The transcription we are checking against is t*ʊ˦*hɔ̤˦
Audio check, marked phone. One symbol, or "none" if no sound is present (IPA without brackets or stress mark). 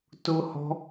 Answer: ʊ˦